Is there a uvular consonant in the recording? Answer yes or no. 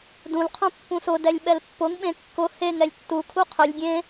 yes